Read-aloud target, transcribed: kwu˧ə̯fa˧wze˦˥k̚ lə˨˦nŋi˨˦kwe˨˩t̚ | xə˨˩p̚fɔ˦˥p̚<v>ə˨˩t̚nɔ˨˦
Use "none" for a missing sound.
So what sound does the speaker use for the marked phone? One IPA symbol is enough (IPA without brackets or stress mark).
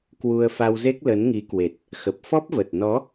v